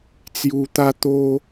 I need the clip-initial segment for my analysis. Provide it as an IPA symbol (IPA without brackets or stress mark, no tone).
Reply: t͡s